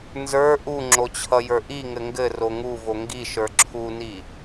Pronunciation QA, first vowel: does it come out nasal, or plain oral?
oral